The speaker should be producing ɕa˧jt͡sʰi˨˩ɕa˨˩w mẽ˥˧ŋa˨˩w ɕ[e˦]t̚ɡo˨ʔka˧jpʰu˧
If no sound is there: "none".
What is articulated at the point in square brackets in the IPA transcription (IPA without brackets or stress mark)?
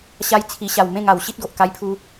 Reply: i˦